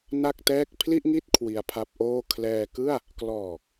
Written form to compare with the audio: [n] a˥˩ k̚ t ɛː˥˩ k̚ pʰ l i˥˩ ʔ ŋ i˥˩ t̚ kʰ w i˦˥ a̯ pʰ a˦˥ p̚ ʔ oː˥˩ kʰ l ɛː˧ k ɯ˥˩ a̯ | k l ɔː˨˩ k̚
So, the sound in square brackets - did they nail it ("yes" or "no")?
yes